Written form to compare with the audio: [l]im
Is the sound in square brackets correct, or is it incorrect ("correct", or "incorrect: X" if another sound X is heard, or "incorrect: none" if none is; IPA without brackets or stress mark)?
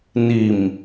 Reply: incorrect: n